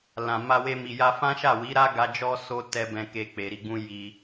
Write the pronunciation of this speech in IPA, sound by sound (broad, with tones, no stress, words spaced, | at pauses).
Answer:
lã˨ ma˧we˧ mi˨ja˧fã˦ ʃa˦˨wi˨˦ɾa˦ɡa˧ d͡ʒɔ˧ so˦ tɛ˦bɛ̃˧ke˧ k͡pe˨ɾi˧ɡ͡bũ˦ ji˧